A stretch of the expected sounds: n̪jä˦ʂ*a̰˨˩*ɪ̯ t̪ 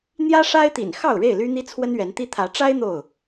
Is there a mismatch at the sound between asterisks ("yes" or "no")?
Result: yes